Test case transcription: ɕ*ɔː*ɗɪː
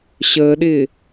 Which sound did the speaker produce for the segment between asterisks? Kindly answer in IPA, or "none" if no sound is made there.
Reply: əː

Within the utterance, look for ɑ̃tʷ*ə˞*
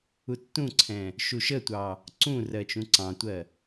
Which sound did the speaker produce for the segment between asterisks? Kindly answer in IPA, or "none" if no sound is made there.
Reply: ɜ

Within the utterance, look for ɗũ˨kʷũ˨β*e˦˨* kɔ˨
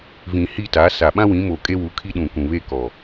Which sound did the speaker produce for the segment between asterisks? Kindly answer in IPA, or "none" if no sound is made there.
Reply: e˦˨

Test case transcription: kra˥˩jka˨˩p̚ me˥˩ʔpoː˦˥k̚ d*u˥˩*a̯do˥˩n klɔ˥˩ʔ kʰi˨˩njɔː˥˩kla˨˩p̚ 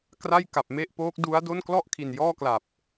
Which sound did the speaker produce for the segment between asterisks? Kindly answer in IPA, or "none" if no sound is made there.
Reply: u˦˥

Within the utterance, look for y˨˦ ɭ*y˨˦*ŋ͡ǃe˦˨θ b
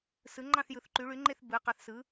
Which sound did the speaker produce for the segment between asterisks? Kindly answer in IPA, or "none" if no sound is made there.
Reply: y˨˦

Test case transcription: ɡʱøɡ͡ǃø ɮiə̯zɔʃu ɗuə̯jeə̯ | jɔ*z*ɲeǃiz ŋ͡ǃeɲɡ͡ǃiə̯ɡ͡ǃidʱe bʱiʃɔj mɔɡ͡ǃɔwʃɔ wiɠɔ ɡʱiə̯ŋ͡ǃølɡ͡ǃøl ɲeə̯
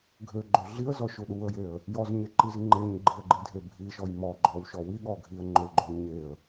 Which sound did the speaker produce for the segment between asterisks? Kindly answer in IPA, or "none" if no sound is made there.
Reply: z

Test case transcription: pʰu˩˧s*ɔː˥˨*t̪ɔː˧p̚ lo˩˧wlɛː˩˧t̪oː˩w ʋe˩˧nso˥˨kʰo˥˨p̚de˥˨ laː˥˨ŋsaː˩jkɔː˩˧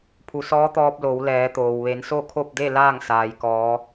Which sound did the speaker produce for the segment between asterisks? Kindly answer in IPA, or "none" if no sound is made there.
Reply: ɔː˧˥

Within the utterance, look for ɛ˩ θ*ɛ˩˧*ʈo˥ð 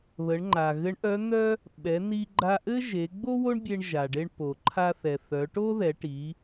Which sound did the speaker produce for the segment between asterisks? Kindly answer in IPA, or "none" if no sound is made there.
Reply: œ˩˧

